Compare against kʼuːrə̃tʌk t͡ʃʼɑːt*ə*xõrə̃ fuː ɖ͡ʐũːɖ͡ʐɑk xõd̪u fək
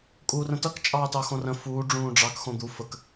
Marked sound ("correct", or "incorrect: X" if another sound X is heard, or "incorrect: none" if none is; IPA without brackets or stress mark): incorrect: ɑ